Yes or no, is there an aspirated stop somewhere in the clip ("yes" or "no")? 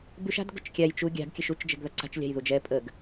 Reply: no